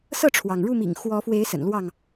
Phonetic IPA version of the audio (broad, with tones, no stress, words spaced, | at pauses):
sɤ˥˨ʈ͡ʂʰwɑ˩ŋɻu˥˨mḭ˨˩ŋ xwɔ˨˦fwe˨˦ɪ̯ sə̰˨˩nlwɑ˥˨ŋ